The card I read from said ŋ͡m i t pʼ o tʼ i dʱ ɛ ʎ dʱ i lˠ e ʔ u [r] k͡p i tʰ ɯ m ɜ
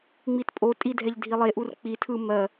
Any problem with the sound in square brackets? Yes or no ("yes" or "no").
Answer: no